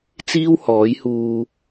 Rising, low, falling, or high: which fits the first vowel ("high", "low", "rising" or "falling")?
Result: high